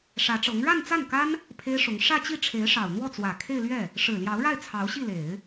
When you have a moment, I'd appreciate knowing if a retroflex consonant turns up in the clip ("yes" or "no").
yes